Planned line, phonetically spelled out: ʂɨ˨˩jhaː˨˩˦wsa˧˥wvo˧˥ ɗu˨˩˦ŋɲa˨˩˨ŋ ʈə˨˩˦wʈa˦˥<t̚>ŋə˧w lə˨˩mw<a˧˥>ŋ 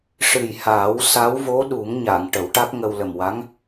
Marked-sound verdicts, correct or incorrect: incorrect: k̚, correct

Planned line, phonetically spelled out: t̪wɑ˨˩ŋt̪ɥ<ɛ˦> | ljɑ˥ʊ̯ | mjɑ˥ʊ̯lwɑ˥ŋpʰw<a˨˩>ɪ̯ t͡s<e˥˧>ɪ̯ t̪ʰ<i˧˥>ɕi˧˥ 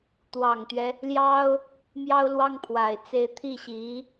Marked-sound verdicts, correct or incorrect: correct, correct, correct, incorrect: i˥˩

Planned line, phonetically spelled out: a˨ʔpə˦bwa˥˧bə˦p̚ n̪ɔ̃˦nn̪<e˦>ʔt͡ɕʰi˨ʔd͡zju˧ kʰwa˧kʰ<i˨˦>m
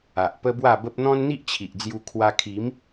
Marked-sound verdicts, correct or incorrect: incorrect: i˦, correct

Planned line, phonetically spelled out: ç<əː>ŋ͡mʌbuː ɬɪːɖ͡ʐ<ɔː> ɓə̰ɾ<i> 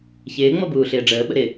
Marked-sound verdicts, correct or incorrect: incorrect: ɪː, incorrect: əː, incorrect: ɪ

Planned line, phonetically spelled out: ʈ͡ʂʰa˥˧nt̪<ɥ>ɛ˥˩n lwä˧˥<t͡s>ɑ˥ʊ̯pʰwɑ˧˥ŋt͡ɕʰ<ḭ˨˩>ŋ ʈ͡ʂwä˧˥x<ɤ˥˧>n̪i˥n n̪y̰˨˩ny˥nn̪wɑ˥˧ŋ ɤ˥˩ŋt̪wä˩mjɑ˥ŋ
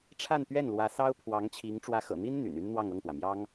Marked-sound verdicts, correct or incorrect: correct, incorrect: s, incorrect: i˧˥, incorrect: ɤ̰˨˩

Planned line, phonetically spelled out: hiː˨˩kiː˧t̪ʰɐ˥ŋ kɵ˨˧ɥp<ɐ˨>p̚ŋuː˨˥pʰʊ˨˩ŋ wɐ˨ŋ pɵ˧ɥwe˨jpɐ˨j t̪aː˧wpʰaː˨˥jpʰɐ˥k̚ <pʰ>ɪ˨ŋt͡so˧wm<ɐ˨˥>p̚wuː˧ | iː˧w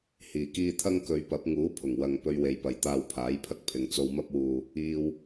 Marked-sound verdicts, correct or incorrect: incorrect: ɐ˨˥, correct, incorrect: ɐ˥

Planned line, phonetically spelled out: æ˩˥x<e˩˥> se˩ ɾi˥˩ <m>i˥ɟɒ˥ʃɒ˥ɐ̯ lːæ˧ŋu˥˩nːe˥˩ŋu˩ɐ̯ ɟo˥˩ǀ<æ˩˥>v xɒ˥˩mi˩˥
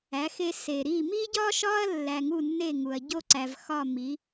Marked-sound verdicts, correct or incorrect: incorrect: e˧, correct, incorrect: æ˩

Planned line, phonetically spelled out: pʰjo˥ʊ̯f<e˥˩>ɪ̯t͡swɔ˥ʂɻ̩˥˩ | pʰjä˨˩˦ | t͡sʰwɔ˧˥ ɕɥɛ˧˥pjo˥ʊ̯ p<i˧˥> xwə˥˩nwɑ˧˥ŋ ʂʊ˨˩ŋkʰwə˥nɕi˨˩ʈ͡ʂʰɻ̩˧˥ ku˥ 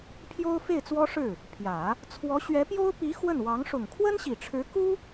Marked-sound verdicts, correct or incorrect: correct, correct

